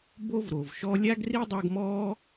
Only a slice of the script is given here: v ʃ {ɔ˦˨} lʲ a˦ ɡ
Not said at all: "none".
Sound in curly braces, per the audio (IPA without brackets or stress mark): ɔ˦